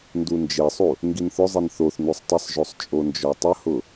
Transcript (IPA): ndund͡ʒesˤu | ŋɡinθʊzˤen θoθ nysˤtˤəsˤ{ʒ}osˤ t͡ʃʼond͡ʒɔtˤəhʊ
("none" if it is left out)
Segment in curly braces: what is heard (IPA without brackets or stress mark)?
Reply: ʒ